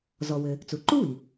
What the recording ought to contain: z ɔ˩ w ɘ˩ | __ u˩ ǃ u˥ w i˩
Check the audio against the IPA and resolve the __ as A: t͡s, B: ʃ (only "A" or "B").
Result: A